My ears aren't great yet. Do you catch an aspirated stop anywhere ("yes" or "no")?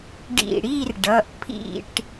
yes